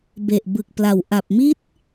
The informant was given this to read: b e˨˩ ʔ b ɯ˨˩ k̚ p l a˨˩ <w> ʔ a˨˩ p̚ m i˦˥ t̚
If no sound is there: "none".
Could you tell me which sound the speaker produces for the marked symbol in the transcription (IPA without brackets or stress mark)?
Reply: w